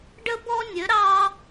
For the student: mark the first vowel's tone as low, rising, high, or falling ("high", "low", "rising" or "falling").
high